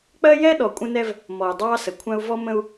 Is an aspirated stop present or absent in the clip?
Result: present